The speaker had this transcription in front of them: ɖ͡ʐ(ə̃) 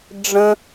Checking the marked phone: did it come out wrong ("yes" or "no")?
no